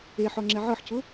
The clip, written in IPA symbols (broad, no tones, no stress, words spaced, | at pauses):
eħɔŋ͡ǁɛ ʕɤħcʊ